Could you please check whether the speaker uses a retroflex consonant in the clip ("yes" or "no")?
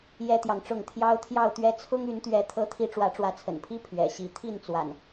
yes